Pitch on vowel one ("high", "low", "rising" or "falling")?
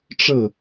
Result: falling